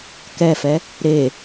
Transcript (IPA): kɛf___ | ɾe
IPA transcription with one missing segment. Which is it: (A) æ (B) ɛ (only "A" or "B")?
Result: B